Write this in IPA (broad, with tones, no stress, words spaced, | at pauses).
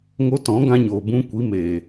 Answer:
ŋo˧tɔ̃˨˦ ɡã˧ɲoː˨bũ˧kʷi˨˦ meː˨